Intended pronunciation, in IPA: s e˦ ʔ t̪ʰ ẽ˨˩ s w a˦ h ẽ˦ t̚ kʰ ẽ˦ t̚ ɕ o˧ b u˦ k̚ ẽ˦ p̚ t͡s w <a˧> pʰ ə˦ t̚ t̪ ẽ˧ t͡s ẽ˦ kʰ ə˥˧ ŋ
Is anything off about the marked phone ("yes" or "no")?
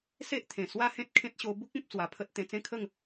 no